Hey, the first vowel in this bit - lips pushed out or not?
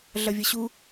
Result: no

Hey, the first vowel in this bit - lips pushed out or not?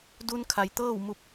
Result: yes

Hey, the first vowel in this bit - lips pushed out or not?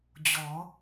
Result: yes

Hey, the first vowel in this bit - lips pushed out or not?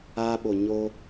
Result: no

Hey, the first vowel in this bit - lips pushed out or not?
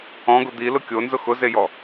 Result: yes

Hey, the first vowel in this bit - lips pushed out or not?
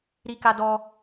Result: no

